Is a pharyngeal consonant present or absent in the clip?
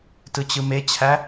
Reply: absent